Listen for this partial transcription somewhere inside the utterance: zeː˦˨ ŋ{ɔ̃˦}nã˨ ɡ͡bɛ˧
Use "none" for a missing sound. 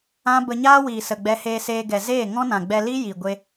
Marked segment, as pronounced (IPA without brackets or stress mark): ɔ̃˦